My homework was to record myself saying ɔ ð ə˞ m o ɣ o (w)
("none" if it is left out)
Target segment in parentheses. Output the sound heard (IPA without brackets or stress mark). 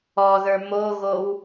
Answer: w